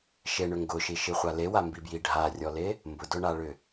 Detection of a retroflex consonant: present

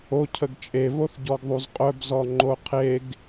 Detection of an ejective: present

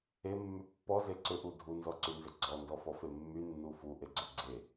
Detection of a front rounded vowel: present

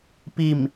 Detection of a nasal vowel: absent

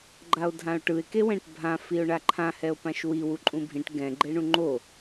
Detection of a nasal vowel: present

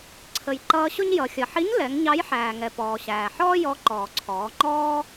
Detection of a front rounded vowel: absent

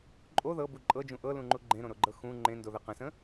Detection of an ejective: present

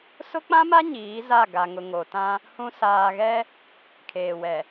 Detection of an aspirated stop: present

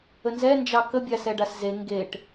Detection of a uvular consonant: absent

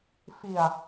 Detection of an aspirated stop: absent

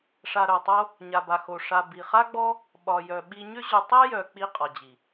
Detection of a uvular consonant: present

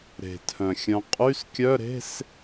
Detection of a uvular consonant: present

